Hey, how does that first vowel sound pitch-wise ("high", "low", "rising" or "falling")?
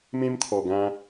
high